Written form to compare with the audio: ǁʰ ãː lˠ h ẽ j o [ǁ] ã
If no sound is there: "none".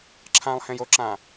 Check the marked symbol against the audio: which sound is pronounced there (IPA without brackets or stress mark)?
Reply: ǁ